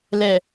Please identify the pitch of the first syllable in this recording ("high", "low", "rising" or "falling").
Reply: low